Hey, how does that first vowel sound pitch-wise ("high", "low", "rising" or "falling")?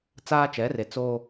high